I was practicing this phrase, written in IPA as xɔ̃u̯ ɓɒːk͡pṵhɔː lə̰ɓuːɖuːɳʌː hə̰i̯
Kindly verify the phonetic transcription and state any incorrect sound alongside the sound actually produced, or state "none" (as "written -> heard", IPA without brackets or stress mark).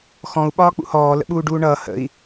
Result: none